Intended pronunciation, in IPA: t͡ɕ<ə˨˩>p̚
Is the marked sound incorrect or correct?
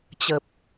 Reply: correct